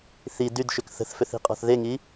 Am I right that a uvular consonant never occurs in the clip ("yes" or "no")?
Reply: no